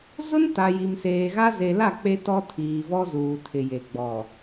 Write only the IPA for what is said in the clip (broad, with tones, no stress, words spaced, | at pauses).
zʊ˦nta˨ ji˨mseː˨ɣa˦ ze˨la˦˨ k͡pe˦tɔ˦ tʰiː˨vɔ˦ zuː˨tʰɪ˨je˨ ɡ͡bɔ˨